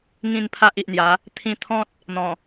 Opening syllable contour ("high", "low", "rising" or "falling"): falling